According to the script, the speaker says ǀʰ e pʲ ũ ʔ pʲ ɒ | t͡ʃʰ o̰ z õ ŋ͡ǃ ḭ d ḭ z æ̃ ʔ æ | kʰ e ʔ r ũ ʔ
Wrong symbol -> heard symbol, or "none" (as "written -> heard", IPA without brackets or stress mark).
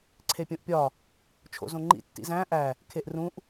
d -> tː